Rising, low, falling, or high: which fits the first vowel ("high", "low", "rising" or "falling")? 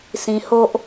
high